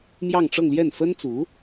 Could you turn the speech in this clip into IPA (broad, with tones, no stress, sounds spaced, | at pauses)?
m j ɑ˥˧ ŋ ʈ͡ʂ ɤ˥˧ ŋ l j ɛ˥˩ n f ə˥ n t͡s u˧˥